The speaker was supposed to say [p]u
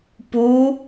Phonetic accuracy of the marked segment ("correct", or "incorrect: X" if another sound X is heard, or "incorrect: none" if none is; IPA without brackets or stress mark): correct